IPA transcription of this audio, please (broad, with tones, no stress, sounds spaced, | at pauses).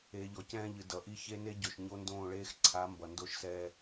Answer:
eː˨ ʎ ɔ˨ c ɛ̃ː˦ ʎ ɨ˨ d ʌ˨ ʔ i˦ ç e˦ n e˦ ɟ o˨ ʃ ɲ o˦ n d õː˦˨ ɭ eː˦ x ǀʰ a˨˦ m b ʌ˨ n d o˦ ʃ s ɛː˦